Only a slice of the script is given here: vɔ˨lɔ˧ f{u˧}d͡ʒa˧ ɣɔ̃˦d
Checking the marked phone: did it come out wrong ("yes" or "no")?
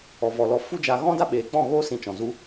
yes